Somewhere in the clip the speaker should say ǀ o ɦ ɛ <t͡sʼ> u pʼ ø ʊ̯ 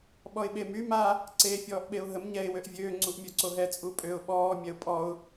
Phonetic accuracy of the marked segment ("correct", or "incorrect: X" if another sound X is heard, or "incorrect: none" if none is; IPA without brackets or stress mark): correct